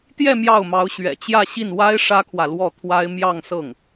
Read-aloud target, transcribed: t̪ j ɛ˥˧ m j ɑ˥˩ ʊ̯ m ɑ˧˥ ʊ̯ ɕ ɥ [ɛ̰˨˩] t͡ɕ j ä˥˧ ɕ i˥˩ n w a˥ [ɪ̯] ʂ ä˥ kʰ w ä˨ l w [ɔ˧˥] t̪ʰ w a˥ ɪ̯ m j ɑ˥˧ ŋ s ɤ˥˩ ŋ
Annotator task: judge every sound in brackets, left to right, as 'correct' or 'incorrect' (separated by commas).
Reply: correct, correct, incorrect